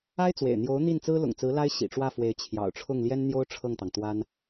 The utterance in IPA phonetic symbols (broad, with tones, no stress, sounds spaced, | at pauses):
a˥ ɪ̯ t͡s w ḛ˨˩ ɪ̯ n̪ j o˧˥ ʊ̯ n̪ i˥˩ n t͡s ɹ̩˥ l ʊ̰˨˩ ŋ t͡s ɹ̩˧˥ l a˥ ɪ̯ ɕ ḭ˨˩ ʈ͡ʂ w ä˥˩ f w e˧˥ ɪ̯ t͡ɕʰ j ɑ̰˨˩ ʊ̯ ʈ͡ʂʰ ʊ˥˩ ŋ l j ɛ˥ n n̪ j o˥ ʊ̯ ʈ͡ʂʰ ɤ˥˩ ŋ t̪ ɑ˩ ŋ t̪ w a˥ n